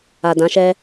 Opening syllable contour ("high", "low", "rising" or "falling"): low